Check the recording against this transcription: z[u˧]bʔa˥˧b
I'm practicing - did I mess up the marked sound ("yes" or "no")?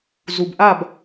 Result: no